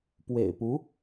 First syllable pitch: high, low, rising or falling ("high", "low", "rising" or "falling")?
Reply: low